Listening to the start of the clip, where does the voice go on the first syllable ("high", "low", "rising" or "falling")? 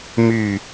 falling